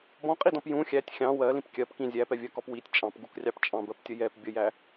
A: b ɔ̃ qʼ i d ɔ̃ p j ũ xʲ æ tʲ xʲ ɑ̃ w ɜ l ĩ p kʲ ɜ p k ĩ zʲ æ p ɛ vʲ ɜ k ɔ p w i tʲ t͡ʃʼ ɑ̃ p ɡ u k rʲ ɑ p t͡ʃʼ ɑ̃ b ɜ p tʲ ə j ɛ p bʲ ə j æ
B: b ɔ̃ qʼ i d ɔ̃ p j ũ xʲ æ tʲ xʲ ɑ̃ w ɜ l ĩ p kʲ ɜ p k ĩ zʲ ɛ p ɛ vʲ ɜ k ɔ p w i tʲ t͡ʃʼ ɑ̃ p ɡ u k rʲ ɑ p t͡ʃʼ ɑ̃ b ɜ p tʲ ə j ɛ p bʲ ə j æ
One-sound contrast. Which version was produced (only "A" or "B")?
A